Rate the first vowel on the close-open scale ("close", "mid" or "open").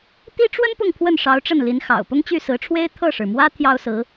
close